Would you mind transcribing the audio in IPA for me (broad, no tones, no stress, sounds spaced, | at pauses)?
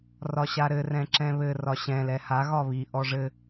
r ɒ ɕ a ɾ ɘ r ɛ̃ ǁ ɛ̃ β ɘ r ɒ ɕ ɛ̃ l ɛ h a ɣ ɒ β i ʔ ɔ ʐ ɘ